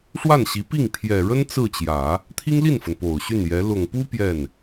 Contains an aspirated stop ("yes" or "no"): yes